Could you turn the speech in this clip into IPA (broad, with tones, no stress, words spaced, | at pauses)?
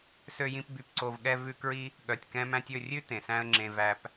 sø˧jĩ˧p by˧pǀo˧v ɠɛ˦vʉ˦ kɹi˦ | ɠœ˨tʲkɛ̃˧mæ̃˧tʲ ɵ˦˨rʲʉ˦ tẽ˨sæ̃˦ə̯ŋ͡ǁẽ˧ væ˧p